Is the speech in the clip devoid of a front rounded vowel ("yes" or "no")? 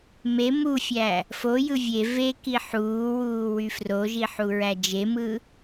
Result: no